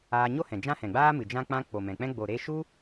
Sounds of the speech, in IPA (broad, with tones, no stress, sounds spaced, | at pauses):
aː˧ ɲ o˦ h ɛ̃˨ d͡ʒ ã˦ h ɛ̃˨ ɡ͡b aː˦ m ɨ˨ d͡ʒ ã˧ k͡p ã˧ k͡p o˨ m ɛ̃˨ k͡p ɛ̃˦ ɡ͡b o˨ ɾ e˧ ʃ u˦